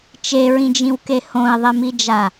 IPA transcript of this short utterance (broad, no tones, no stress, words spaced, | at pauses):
t͡ʃeɹĩd͡ʒĩwke hõi̯ðˤimid͡ʒa